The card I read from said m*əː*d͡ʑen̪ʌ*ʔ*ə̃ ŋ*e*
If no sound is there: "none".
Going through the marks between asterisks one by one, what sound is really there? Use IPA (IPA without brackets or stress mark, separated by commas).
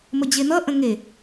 ə, ʔ, e